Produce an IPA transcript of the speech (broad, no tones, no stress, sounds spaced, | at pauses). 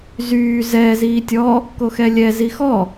z yː z ɛ z iː tʲ ɔ | k o x ɛ lʲ ɛ z i x ɔ